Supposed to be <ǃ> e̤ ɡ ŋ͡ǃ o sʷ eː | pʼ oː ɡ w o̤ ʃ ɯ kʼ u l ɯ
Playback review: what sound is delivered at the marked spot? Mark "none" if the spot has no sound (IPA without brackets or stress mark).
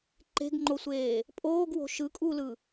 ǃ